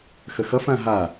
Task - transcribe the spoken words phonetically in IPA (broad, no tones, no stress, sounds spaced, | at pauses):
x ə x ʌ f ã ɦ a